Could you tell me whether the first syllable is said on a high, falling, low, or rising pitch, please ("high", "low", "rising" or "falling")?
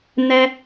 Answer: high